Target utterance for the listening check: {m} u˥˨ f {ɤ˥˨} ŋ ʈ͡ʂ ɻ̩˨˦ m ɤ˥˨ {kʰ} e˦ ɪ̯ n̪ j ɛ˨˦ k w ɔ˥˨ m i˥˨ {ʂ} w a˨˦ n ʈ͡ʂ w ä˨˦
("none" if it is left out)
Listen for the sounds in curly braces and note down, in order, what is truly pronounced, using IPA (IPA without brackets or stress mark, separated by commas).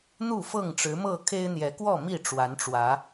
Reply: n̪, ɤ˥˨, kʰ, ʈ͡ʂ